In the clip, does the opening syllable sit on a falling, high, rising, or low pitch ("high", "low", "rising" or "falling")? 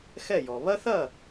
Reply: falling